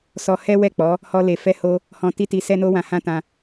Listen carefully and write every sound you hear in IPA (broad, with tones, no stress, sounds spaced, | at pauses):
s ɔ˧ h ɛ˦ w ɛ˦˨ k͡p ɔ˨˦ | h ɔ˦ l e˧ f ɛ˦ h o˦ | h ɔ̃˧ t i˦ t i˧ s ɛ˦ n o˦ w ã˧ h ã˦ t ã˧